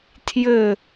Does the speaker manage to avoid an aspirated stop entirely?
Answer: no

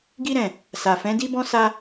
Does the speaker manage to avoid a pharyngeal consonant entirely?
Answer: yes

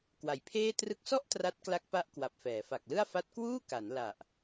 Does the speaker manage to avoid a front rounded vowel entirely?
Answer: yes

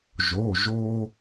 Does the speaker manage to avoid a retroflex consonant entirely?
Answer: yes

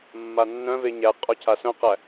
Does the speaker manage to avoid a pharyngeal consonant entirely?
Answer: yes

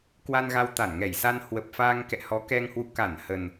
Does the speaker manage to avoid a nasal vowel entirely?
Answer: yes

